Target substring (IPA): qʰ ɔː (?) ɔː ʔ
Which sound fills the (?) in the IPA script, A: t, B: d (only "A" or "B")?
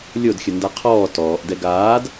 A